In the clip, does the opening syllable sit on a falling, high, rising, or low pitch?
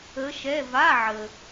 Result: rising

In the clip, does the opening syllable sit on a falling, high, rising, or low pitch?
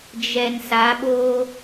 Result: low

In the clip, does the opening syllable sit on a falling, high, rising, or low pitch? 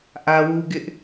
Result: high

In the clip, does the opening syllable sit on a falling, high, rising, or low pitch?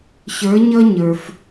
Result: rising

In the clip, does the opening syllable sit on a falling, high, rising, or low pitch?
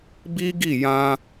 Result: high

